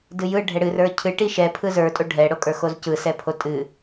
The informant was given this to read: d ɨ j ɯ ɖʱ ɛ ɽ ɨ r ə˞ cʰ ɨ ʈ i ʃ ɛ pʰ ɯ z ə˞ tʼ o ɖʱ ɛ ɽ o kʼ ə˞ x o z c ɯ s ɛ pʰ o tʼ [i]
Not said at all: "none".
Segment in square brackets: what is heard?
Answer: ɨ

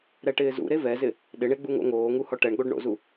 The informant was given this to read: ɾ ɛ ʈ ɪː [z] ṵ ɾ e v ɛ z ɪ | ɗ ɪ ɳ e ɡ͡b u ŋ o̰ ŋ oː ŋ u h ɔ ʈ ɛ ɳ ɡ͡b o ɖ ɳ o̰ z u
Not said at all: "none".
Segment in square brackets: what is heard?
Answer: z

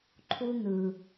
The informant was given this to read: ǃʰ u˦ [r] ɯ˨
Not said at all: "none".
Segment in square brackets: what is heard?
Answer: n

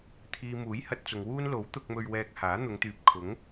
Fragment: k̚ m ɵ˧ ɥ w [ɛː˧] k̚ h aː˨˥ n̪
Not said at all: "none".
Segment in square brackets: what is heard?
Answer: ɛː˧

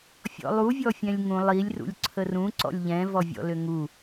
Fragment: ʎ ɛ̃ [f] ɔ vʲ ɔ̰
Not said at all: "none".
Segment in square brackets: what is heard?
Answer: v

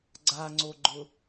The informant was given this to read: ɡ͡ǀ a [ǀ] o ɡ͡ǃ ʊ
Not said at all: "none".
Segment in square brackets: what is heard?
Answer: ŋ͡ǀ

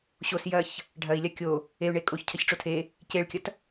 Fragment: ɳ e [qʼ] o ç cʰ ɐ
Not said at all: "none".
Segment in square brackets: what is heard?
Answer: kʼ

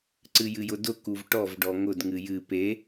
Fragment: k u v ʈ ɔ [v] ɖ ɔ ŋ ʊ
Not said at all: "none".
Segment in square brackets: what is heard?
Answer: v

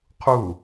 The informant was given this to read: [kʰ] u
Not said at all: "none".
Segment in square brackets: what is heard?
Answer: qʰ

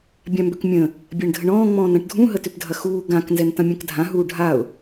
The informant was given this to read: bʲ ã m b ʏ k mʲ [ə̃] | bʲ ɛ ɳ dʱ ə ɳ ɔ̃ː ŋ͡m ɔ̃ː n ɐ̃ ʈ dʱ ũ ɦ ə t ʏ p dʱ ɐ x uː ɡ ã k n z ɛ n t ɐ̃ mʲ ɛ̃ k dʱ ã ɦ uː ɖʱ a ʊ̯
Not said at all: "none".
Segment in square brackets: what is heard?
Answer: ə̃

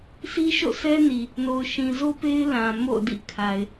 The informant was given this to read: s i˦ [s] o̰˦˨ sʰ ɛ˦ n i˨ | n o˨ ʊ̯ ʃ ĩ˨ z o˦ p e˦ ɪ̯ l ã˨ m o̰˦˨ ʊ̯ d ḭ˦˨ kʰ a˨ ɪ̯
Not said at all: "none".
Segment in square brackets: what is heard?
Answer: ʃ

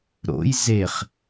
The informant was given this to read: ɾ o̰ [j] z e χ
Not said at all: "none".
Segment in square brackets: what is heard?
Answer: j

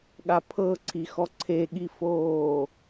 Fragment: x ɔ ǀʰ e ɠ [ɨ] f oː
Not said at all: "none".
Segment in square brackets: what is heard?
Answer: i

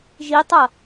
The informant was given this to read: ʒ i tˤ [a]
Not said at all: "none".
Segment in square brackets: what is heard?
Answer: ɐ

